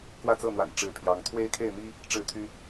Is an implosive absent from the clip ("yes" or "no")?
yes